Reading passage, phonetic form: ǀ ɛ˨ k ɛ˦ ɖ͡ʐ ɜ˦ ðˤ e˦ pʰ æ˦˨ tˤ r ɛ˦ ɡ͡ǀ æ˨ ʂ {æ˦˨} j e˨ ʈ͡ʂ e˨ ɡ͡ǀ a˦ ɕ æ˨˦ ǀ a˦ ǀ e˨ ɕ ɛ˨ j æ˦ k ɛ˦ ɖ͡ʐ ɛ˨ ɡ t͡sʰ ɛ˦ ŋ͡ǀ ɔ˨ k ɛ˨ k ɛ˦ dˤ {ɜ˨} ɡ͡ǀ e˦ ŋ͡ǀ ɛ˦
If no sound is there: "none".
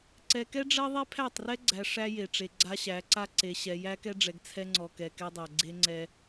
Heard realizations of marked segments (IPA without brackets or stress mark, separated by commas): æ˦, æ˨